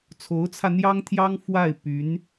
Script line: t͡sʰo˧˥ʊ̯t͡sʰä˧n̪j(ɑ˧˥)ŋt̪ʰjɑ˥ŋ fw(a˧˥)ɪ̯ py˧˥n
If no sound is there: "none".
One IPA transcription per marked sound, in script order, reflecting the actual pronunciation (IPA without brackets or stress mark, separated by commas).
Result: ɑ˥, a˥˩